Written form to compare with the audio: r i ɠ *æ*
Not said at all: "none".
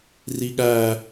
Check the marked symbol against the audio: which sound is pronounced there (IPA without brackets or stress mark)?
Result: æ